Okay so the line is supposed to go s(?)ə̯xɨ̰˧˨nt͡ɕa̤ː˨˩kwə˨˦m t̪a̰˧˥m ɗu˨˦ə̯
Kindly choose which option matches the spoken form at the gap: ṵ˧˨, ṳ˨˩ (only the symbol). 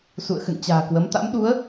ṵ˧˨